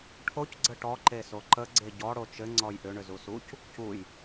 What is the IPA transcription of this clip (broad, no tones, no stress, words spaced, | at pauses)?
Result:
ʈʰoc ɡ͡ǀəʈɔ ǃesoǃə ɡ͡ǀeɟɔ ɽot͡ʃɘ ŋ͡ǀɔjʔʏ ɳʏzusuc | cuj